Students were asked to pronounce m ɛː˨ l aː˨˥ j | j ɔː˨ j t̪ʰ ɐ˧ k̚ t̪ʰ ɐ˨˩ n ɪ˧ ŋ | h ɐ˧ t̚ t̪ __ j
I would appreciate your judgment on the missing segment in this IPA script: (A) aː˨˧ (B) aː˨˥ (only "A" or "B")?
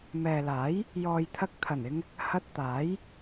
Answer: B